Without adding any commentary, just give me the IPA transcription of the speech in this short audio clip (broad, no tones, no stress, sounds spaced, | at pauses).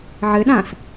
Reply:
ʕ ɘ ɗ ã s